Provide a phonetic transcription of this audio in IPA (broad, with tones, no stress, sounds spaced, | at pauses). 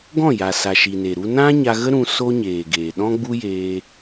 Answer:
ɡ ɔ̃˦˨ j a˨ s a˨ ʃ i˨ n e˨ ɾ u˧ n ã˦ ɲ a˧ ɣ ə˦ ɾ ũ˧ s o˦ ɲ eː˨ ɡ eː˨ ɗ ɔ̃˦ ɡ͡b u˦ j eː˧